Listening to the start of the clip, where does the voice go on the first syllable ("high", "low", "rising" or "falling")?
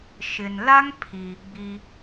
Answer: low